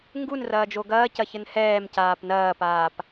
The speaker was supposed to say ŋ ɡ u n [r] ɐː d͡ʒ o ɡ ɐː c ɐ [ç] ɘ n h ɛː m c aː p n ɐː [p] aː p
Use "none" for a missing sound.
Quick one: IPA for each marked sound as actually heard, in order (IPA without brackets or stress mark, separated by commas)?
r, ç, p